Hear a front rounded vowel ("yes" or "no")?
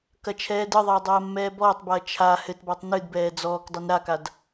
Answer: no